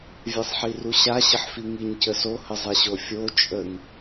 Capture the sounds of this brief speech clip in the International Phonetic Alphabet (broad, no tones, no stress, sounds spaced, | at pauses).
vʲ e sˤ ħ i r u ɕ a ɕ ə ħ f i ŋ i ɲ c ə s o h ə zˤ e ɕ o fʲ o t͡ʃʼ ə ŋ